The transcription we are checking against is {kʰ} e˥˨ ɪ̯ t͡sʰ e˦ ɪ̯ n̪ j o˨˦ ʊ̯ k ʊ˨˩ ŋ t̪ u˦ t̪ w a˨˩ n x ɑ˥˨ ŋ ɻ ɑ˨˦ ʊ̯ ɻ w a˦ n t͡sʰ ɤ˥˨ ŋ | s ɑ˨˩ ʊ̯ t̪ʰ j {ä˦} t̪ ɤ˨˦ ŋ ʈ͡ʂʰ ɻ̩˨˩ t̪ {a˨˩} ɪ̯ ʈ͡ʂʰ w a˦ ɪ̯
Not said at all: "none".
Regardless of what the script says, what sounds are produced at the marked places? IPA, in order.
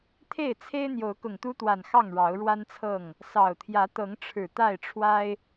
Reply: t̪ʰ, ä˨˦, a˥˨

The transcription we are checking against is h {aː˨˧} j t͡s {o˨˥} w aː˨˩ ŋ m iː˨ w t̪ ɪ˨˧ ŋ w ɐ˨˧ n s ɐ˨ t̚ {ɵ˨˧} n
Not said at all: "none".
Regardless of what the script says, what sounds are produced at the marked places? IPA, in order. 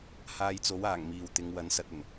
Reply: aː˧, o˨˥, ɵ˨˩

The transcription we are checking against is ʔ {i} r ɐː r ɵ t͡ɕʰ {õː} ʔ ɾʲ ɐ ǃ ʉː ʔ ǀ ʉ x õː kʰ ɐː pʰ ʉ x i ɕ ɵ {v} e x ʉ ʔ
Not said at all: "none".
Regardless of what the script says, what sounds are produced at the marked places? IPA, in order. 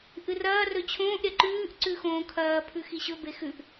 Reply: ɨ, õː, b

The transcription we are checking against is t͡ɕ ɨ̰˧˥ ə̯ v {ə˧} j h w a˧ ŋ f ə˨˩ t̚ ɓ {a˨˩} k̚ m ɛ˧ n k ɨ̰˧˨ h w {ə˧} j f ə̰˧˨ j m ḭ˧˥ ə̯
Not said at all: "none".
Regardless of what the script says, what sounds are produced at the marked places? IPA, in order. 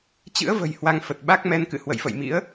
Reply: ə̤˨˩, a˦˥, ə̰˧˨

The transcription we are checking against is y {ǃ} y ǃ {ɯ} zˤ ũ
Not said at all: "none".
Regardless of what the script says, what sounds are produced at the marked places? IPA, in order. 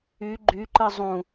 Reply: ɡ͡ǃ, ɯ

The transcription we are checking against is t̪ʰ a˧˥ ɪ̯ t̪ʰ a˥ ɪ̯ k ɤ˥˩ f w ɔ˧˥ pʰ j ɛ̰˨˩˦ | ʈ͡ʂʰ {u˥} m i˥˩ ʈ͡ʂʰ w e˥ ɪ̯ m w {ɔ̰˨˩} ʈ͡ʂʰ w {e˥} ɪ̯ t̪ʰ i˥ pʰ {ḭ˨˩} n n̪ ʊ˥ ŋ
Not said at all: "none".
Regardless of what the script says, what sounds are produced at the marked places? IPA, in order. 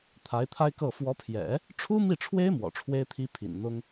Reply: u˥, ɔ̰˨˩, e˥, ḭ˨˩

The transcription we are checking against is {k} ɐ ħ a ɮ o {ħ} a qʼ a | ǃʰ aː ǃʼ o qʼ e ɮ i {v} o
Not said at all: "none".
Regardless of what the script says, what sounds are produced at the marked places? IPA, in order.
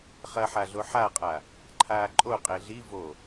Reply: χ, ħ, v

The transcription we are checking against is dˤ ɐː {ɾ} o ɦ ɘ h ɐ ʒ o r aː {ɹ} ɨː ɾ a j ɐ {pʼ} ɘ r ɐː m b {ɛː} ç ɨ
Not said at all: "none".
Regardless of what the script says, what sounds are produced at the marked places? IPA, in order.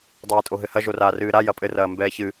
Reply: tʼ, r, pʼ, ɛː

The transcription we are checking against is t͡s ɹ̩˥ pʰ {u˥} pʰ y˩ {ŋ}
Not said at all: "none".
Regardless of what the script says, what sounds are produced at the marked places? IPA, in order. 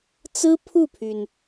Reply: u˥˩, n

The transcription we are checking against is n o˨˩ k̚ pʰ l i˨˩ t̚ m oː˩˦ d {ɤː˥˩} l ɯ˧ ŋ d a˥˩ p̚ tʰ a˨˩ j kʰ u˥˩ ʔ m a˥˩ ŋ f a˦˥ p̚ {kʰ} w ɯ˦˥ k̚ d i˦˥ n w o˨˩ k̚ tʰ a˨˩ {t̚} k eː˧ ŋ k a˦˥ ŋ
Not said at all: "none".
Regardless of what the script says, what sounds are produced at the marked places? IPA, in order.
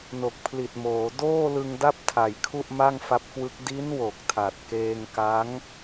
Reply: oː˥˩, k, t̚

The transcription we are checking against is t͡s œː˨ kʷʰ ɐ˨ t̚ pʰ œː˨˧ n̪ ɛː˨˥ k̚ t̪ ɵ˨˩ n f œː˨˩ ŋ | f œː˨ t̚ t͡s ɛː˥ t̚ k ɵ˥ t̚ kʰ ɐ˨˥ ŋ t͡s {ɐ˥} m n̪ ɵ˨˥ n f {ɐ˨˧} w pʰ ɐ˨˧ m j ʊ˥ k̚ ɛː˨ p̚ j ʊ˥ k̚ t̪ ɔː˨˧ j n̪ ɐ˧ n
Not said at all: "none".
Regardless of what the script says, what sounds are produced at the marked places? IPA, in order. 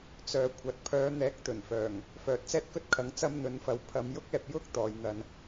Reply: ɐ˥, ɐ˨˧

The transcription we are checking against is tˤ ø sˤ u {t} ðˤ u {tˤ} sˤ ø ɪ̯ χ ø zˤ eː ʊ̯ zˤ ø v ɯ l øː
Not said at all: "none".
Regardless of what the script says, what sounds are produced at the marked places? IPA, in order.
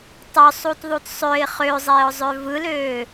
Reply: t, t

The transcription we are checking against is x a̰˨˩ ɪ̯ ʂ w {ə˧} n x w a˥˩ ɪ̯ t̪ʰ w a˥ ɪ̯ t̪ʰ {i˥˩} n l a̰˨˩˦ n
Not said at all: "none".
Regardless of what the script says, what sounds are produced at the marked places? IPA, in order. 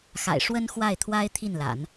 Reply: ə˥, i˥˩

